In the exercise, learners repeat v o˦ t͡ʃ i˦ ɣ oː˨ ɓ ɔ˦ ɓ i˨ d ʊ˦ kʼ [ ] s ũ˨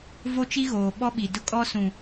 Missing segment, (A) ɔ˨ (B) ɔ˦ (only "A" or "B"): B